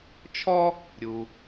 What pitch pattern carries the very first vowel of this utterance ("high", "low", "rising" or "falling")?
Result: high